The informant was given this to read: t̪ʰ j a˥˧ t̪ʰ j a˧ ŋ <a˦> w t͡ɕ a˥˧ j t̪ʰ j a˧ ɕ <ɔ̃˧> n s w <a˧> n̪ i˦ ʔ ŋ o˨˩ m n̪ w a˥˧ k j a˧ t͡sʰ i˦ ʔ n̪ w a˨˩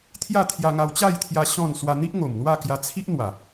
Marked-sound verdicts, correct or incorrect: incorrect, incorrect, correct

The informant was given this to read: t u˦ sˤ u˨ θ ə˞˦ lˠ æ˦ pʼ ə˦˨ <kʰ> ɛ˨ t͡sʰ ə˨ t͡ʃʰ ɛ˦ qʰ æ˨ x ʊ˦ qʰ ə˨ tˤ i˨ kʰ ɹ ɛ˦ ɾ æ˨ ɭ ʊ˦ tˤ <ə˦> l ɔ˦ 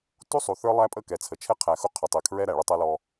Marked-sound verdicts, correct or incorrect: incorrect, incorrect

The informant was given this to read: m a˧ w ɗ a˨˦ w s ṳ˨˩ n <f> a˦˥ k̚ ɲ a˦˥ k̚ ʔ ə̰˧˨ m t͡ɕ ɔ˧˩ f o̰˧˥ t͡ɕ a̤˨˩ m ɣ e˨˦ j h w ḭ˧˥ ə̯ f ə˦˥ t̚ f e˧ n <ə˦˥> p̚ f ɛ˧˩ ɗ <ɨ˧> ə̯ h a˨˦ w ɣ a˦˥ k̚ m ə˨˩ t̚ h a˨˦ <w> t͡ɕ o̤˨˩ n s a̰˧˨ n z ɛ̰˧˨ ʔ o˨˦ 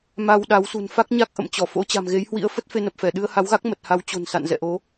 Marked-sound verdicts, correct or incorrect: correct, incorrect, correct, correct

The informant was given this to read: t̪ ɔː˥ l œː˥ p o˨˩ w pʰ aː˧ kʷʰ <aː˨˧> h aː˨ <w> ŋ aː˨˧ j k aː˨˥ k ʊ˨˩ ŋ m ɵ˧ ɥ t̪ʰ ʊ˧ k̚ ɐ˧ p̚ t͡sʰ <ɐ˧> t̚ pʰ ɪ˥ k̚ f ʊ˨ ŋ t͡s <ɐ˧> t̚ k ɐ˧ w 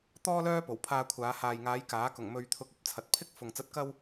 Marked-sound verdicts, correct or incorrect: correct, incorrect, incorrect, incorrect

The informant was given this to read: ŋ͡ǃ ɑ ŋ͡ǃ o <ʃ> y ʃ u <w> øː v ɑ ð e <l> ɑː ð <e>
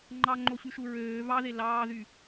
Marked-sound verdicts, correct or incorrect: incorrect, incorrect, correct, incorrect

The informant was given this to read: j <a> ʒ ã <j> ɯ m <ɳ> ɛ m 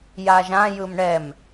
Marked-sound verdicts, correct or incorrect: correct, correct, correct

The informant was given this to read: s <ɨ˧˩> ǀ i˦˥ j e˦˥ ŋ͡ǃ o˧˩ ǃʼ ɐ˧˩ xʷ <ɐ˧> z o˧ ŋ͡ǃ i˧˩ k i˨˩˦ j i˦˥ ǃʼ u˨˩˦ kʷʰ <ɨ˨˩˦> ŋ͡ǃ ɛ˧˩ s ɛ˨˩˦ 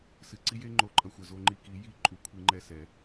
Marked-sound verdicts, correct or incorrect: correct, incorrect, incorrect

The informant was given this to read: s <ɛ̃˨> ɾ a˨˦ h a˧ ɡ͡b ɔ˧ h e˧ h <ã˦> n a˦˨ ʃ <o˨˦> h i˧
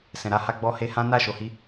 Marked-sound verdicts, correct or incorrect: correct, correct, incorrect

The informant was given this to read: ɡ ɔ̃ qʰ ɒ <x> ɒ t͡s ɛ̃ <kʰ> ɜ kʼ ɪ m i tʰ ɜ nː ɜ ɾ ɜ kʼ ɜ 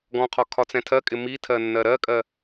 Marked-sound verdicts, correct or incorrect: incorrect, incorrect

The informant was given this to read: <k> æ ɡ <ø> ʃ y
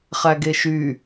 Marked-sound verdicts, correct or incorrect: incorrect, incorrect

